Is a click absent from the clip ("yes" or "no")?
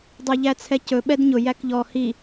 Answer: yes